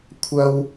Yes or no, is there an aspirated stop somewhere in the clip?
yes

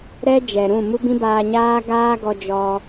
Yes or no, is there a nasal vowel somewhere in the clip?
yes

